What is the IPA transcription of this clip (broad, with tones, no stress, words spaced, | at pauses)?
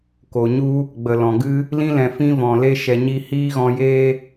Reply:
ko˨ɲu˦ | ɡ͡bə˨lɔ̃˨ɡɨ˦ | lĩ˧lɛ̃˨ fĩ˧vɔ̃˨le˧ ʃɛ˧ɲi˦ hiː˦ɣɔ̃˧jeː˦